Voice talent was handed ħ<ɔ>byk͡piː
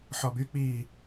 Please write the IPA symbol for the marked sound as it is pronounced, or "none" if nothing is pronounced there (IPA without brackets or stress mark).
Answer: ɔ